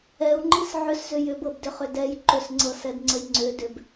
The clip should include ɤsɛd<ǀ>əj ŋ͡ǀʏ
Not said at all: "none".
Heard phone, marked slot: ŋ͡ǀ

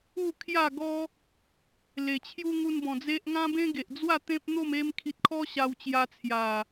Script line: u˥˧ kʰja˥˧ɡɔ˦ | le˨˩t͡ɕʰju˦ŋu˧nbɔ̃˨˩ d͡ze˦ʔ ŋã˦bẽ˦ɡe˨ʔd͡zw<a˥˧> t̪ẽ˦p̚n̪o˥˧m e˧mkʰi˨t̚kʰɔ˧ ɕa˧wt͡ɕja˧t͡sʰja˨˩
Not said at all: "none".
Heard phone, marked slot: a˥˧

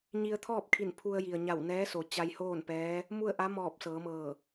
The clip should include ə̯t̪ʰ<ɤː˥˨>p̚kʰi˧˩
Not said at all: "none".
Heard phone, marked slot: ɔː˥˨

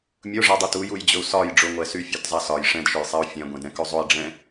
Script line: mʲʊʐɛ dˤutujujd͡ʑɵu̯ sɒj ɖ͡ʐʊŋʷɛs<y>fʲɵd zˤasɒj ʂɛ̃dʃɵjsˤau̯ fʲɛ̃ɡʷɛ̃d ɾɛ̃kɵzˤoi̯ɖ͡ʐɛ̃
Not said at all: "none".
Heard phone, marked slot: y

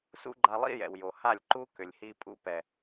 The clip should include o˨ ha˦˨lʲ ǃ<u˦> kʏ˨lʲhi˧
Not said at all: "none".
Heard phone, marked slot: u˦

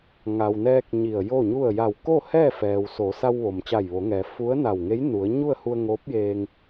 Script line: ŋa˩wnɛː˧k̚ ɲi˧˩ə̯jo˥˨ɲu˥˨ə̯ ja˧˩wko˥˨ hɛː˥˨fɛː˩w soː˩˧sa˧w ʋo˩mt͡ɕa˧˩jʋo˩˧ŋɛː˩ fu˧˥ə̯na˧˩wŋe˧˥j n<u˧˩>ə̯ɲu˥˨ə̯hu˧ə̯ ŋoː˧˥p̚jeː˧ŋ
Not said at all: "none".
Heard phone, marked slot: u˩˧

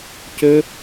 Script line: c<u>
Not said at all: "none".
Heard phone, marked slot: ø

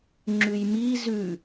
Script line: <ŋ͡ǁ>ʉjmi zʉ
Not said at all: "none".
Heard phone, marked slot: ŋ͡ǁ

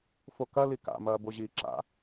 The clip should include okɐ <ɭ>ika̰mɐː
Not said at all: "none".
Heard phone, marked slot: l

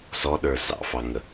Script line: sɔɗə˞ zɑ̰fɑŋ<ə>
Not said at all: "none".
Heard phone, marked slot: ə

